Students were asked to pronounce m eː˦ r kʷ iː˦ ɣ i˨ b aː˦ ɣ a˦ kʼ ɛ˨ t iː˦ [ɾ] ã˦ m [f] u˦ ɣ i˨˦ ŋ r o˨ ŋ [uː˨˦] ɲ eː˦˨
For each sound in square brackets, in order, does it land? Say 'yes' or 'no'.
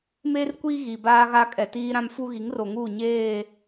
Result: yes, yes, no

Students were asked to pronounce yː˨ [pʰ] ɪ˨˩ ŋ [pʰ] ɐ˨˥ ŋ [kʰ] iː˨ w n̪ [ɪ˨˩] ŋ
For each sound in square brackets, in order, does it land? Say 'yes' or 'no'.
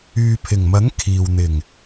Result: yes, no, yes, yes

